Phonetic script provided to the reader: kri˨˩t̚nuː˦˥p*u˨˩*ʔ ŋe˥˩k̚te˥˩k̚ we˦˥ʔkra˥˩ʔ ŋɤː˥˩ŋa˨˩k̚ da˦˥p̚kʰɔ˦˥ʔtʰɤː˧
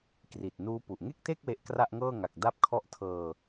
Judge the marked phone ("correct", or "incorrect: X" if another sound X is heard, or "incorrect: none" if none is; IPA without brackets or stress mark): correct